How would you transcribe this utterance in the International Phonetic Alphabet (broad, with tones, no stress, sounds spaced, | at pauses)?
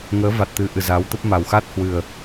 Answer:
ŋ əː˨˦ v a˨˩ t̚ t̪ ɨ˨˩ ʔ ɨ˨˩ z a˨˦ w t̪ ə˦˥ p̚ m a˨˩ w x a˦˥ t̚ h w ɨ˨˩ ə̯